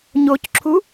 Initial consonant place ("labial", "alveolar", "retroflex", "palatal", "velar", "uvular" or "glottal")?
palatal